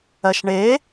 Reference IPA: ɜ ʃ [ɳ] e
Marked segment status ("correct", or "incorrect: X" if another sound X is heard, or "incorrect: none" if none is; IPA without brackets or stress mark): correct